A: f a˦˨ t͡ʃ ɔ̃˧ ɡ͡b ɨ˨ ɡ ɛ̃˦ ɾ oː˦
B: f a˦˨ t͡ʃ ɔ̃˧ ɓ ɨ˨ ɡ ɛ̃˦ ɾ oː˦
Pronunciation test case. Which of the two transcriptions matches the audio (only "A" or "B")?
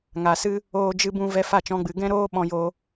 A